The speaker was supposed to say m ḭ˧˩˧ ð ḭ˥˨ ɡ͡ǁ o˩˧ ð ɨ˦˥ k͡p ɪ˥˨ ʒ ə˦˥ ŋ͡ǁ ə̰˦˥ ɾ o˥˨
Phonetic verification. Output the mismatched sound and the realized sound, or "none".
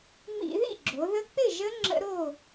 ɨ˦˥ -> ə˦˥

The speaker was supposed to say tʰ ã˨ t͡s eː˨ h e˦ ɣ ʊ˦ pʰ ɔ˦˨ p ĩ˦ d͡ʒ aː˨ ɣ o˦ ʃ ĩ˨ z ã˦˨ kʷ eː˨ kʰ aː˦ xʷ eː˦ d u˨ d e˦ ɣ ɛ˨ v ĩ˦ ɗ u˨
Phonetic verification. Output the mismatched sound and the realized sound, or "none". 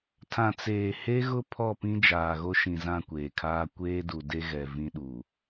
xʷ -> kʷ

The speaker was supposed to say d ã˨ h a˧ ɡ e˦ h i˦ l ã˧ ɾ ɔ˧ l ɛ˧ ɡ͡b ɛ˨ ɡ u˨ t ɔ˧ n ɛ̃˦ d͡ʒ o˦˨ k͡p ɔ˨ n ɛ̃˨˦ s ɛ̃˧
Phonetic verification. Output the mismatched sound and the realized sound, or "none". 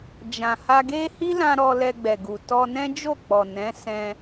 d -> d͡ʒ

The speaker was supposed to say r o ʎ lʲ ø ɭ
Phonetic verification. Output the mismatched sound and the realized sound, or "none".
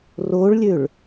ʎ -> ɭ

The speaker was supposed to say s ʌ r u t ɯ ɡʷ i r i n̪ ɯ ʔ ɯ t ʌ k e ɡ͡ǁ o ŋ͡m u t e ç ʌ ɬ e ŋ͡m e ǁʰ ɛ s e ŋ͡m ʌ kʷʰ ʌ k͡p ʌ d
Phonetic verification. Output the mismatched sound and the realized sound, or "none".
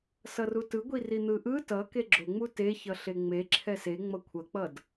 none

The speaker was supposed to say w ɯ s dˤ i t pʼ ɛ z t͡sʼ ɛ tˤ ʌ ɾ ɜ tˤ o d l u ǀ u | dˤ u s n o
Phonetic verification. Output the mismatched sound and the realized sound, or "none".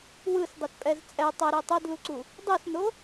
ɜ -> ɛ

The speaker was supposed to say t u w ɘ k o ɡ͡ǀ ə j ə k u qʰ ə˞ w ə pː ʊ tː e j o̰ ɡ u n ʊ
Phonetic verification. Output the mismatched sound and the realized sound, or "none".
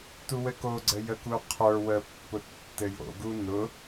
e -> ɘ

